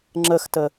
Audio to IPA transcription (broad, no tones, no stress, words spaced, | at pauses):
ŋ͡ǁəxtə